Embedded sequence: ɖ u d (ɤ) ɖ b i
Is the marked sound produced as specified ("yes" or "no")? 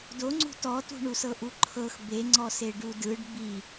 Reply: no